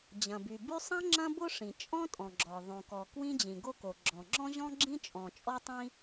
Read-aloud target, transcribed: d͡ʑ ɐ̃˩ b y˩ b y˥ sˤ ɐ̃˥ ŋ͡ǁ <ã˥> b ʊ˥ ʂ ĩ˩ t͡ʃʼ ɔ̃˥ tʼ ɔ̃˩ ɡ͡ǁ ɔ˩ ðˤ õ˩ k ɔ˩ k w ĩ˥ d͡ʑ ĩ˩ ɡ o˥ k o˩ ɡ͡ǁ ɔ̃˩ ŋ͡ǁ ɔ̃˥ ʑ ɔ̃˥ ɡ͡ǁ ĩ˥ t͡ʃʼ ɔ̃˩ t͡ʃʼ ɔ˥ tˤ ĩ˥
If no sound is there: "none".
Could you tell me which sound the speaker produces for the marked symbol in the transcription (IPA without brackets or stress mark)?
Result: ɐ̃˥